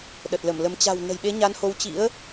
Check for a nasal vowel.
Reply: absent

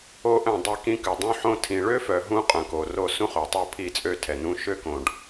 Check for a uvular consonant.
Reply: present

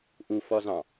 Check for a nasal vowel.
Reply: present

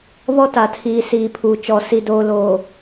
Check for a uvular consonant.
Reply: absent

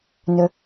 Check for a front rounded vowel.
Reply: present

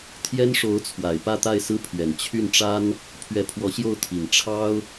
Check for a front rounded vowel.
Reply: present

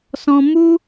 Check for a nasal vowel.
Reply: present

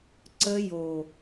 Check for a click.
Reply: present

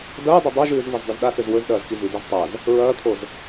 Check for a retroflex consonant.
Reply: absent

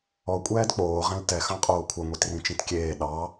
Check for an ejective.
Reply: present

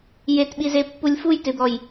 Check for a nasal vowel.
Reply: absent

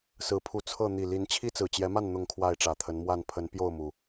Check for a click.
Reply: absent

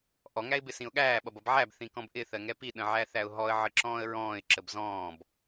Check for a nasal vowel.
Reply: present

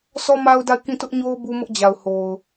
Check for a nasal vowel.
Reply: present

